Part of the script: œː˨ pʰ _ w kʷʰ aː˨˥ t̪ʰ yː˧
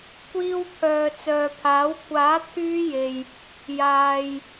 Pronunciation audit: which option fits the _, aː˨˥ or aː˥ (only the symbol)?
aː˨˥